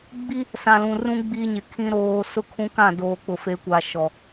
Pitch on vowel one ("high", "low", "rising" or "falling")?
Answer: high